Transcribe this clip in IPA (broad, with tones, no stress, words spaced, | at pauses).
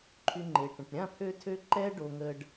ǃʰy˧ŋ͡ǃe˨ʈə̃˨ʈ ɾʲã˦˨pʰø˧tʰø˧ ǃɛ˦ ɖo˧ŋə˧ɖ